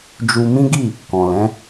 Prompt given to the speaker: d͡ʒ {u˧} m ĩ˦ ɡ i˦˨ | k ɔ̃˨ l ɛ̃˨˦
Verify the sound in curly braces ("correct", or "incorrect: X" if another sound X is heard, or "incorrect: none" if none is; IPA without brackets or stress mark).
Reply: correct